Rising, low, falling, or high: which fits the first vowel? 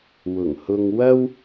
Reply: low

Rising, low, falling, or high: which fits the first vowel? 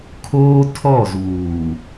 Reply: high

